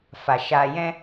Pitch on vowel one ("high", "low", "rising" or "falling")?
low